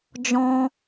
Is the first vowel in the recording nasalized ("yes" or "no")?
yes